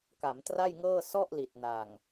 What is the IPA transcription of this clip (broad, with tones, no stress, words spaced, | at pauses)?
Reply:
ka˩˦mtra˥˩jŋɤː˥˩ sɔ˥˩ʔli˨˩t̚na˨˩ŋ